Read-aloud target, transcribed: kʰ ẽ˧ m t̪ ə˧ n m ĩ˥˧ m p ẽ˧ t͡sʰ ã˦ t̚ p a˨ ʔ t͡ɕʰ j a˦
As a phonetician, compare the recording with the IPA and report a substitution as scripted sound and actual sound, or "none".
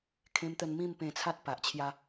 ã˦ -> a˦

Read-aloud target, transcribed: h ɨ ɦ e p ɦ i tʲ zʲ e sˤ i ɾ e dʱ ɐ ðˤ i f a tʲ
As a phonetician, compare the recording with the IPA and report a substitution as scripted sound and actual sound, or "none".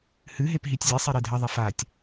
none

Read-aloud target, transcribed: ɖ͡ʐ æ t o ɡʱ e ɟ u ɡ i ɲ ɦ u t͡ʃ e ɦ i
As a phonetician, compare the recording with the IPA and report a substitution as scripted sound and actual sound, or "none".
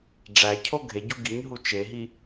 t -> cʰ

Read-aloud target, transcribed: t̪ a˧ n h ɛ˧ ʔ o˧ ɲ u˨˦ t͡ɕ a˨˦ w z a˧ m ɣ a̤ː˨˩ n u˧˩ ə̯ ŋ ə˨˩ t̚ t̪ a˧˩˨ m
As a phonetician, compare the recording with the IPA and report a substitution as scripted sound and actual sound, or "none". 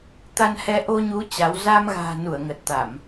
none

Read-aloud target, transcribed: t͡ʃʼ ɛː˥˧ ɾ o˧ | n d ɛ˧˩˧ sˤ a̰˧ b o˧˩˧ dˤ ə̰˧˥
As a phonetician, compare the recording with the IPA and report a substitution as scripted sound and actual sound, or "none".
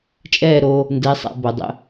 ɛ˧˩˧ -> ɛ˧˥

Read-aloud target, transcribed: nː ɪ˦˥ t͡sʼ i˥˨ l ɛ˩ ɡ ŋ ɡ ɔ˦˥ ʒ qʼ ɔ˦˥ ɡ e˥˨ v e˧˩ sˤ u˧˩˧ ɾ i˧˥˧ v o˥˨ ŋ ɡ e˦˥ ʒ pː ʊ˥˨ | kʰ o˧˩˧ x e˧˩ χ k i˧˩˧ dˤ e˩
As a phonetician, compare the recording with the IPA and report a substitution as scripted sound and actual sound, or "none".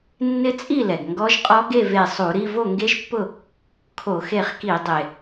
none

